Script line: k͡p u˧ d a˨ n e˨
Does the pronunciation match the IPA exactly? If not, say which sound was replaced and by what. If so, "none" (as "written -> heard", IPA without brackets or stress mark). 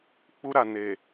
d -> ɾ